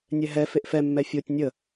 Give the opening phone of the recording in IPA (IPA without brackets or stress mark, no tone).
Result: nʲ